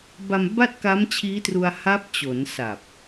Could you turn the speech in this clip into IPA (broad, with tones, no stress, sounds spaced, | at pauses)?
b a˧ m b a˥˩ t̚ k a˦˥ m t͡ɕʰ iː˦˥ t r u˧ a̯ h a˦˥ p̚ t͡ɕ o˩˦ n s a˨˩ p̚